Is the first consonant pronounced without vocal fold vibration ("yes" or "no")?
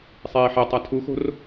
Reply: yes